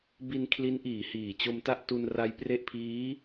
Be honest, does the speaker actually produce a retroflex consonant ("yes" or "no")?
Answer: no